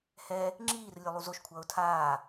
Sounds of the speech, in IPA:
h ɛ | ŋ͡ǁ iː r lʲ o lˠ u z o ʃ kʷʰ ʌː ʊ̯ tʰ aː

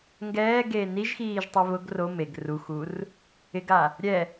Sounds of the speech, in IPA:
ŋ ɡ ɛː ɡ eː n i ʒ x iː ʒ tˤ e β ʊ ɡ r o m e ɡ r u x u r | ɪ ɡ a | ɾʲ ɛ

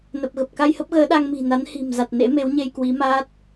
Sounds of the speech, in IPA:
n ə˨˩ p̚ ɣ ə˨˩ p̚ k a˧ j h ə˦˥ p̚ ɣ əː˨˦ ɗ a˧ ŋ m i̤˨˩ n a˨˦ n h i̤˨˩ m z a˨˩ t̚ n ḛ˧˥ m e˨˦ w ɲ e˧ j k w i˨˦ m aː˦˥ t̚

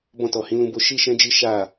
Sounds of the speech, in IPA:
b ɔ̃˧ t ɔ˨ h ĩ˨˦ l ũ˧ b o˦ ʃ i˦ ʃ ɛ̃˦ d͡ʒ i˦ ʃ a˦˨

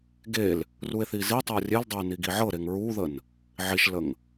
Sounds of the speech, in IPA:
ɡ e l | r u e̯ θ i z i tˤ ə o̯ rʲ e l dˤ ə e̯ n i ɡ i ʕ ɤ ɾ e ŋ ɹ u ð ə n | ʕ i ʃ l ə ŋ

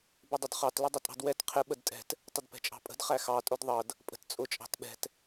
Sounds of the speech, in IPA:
b ɪ dˤ ʊ d χ ɑ t l ʊ dˤ ɪ tʼ ɑ̤ d w ɛ t qʰ ɪ ɓ ə d tʼ ɛ̤ t | tˤ ʊ d p ɛ̤ t͡ʃʼ ɑ̤ pʼ ə̤ d χ æ x ɑ tʼ ʊ d ðˤ ʌ d | pʼ ə̤ t t͡sʼ ʊ t͡ʃʼ ɑ̤ t ɓ ɛ̤ t

